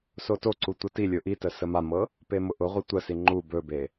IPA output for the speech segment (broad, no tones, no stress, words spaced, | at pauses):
sotoǀu tʷɤtilʲʊ ʔitə səmamɤ | pemʊʔʊʁʷi tʷəsi ŋ͡ǃu bɵbe